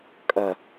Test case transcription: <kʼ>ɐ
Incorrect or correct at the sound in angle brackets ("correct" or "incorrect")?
correct